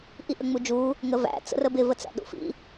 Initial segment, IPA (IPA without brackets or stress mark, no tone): ʔ